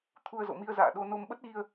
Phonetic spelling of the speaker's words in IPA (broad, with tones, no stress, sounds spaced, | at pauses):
t̪ʰ u˧ ə̯ z o̰˧˨ m i˧ ə̯ z a̰ː˧˨ ɗ o˧ n o˧ m ɓ ə˦˥ t̚ ɣ i˧ ə̯